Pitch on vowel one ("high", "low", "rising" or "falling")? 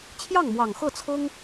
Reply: falling